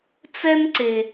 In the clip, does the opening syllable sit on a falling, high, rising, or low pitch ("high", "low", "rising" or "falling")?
high